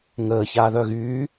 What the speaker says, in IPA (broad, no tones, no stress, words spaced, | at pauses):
ŋəː çaːðœɣy